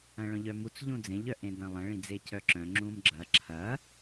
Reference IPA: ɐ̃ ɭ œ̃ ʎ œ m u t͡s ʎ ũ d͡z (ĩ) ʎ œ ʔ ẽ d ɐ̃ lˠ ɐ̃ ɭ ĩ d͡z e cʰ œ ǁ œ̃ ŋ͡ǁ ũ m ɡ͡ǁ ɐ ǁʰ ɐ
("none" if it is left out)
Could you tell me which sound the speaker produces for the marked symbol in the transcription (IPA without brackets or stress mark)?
ẽ